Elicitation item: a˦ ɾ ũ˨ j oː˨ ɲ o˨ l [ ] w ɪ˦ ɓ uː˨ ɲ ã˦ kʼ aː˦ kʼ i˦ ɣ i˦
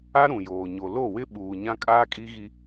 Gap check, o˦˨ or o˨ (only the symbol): o˦˨